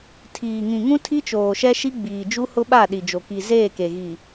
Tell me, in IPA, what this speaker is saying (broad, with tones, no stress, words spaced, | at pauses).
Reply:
tʰiː˨ŋĩ˨ŋũ˦ tʰi˦t͡ʃoː˨ʃɛ˦ʃi˦ ɡ͡biː˨d͡ʒu˦hʊ˦ɓa˦˨ ɗi˨d͡ʒo˨ ki˨zeː˦˨ke˨ ɣi˨